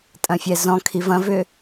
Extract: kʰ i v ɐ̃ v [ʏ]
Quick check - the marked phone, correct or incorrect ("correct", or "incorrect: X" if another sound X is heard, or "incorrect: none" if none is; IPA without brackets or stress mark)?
correct